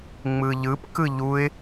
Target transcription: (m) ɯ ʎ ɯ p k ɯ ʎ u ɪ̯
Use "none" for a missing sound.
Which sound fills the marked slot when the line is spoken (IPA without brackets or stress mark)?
ŋ͡m